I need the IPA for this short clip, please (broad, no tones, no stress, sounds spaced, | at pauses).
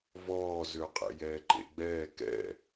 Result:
v ɔː z ø qʼ ɛ̰ j ɛː ǃ ḛ ɡ͡b ɛː k ɛ̰